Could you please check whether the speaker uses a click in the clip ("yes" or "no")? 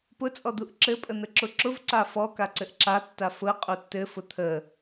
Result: yes